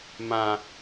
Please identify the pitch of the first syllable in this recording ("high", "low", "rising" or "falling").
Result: low